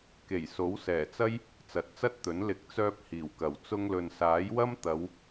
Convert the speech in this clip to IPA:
k e˨˩ j s o˨˥ w s ɛː˨˩ t͡s ɐ˥ j | t͡s ɐ˨˥ t̚ t͡s ɐ˥ t̚ t̪ ɵ˨˥ n l ɪ˨˥ k̚ t͡s œː˧ p̚ h iː˨˩ w k ɐ˨˩ w t͡s ʊ˧ ŋ l ɵ˨ n s aː˨˥ j w ɐ˥ m t̪ ɐ˨˧ w

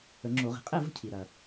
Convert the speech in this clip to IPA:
ə˨˩˦ ŋ͡ǁ o˨˩˦ ʁ i̤˩ qʼ ɛ˥˨ v ə̤˥˨ cʰ i˩ ɾ ɐ˩

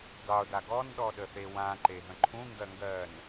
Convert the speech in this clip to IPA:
dˤ o d a ɡ ɔ n ɗ ɔ ɗ ə θ e w ã ǃ e ɦ ə̃ ǃʰ ũ ŋ ɡ ɜ ŋ ɡ ɜː n

